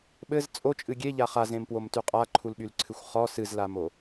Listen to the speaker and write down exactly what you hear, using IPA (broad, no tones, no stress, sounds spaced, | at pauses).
ɓ ɘ z t͡sʼ o t͡ʃʼ ɨ ɡʲ e ʎ a χ a z ẽ m p w o m t y qʼ a ǃʰ u l ɓ y l ǀʰ ɨ xʷ χ ɔ s ɨ z l a m o